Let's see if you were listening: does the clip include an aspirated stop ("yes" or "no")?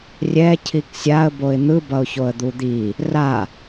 yes